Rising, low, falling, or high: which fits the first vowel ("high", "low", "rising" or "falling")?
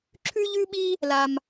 high